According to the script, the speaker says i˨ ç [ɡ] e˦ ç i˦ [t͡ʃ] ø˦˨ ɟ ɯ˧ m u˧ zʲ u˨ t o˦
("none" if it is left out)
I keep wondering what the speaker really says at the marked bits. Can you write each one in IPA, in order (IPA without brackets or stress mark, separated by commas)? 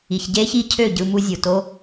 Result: ɟ, cʰ